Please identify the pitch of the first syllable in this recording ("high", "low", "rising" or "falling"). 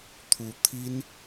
rising